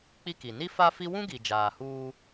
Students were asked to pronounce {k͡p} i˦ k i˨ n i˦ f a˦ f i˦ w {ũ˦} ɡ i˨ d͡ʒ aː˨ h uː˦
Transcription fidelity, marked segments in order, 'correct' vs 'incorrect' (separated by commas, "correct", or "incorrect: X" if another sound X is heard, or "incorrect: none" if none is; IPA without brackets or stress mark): correct, correct